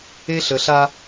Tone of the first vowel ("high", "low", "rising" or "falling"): high